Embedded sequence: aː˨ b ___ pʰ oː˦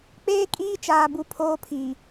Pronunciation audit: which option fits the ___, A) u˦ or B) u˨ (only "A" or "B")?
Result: B